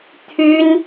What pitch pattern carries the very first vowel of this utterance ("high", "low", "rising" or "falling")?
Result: high